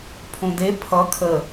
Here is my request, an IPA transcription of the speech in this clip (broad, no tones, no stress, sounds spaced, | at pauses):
pʰ õ d e pʰ ʌ kʰ ə